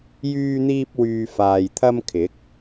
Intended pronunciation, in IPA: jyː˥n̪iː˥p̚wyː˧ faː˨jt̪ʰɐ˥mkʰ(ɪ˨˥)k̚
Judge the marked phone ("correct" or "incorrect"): correct